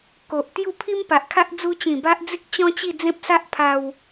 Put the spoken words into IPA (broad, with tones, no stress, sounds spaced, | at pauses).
k o˨ ʔ t̪ j u˥˧ pʰ i˦ m p a˨ ʔ kʰ a˦ ʔ d͡z u˧ t͡ɕ ĩ˨˩ b a˦ ʔ d͡z i˦ k̚ t͡ɕ ɔ̃˦ t͡ɕ i˥˧ d͡z ẽ˦ p̚ s a˦ ʔ pʰ a˧ w